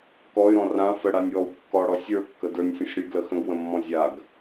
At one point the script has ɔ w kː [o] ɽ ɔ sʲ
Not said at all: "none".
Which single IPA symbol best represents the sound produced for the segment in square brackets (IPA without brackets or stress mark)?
ɔ